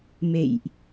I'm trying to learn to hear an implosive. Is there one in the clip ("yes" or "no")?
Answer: no